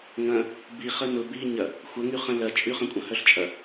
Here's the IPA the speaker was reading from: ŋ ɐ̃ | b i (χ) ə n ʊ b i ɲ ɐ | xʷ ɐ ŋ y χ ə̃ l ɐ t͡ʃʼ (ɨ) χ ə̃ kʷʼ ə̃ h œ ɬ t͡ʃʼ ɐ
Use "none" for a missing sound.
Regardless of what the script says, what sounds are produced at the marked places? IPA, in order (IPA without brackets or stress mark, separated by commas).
χ, y